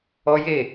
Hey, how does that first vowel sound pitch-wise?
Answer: high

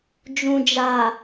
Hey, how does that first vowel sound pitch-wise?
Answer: low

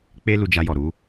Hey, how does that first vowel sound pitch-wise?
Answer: high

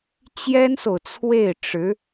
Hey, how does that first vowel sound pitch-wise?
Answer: high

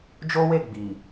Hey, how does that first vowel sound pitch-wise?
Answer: high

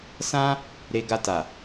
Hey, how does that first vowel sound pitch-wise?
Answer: high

